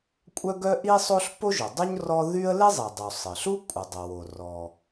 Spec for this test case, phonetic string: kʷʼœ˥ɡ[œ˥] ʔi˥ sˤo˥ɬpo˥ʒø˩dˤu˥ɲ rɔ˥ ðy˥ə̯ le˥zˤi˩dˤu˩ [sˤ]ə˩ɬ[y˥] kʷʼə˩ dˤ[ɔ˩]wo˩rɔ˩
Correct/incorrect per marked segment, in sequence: correct, correct, incorrect: u˥, incorrect: ə˩

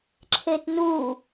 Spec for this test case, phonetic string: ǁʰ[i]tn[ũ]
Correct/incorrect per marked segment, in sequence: incorrect: e, incorrect: u

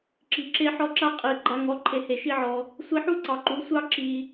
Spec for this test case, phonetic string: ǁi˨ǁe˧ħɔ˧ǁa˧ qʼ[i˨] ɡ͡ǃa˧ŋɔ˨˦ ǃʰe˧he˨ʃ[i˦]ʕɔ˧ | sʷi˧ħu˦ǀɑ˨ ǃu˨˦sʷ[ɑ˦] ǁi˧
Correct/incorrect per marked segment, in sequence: correct, correct, correct

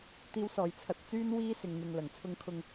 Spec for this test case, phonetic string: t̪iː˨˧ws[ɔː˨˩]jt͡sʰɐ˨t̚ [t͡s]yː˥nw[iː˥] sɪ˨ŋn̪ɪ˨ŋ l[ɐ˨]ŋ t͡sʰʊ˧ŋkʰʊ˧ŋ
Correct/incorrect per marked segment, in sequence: correct, correct, correct, incorrect: ɐ˨˩

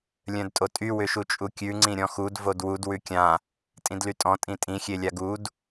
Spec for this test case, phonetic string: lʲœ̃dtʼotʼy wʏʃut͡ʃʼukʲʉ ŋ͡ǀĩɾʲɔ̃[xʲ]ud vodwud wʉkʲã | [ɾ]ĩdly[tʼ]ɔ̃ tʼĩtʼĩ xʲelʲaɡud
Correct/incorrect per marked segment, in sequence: incorrect: x, incorrect: tʼ, correct

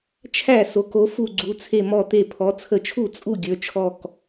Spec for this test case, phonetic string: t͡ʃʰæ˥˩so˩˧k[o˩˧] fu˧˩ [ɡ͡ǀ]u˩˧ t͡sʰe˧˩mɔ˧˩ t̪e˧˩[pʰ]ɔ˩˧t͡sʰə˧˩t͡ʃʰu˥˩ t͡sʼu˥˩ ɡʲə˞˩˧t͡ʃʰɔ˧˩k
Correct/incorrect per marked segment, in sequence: correct, correct, correct

